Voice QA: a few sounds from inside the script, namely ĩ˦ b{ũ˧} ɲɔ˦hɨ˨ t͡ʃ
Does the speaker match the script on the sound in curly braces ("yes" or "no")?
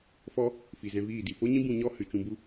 yes